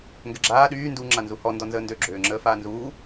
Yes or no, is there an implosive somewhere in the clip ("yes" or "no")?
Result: yes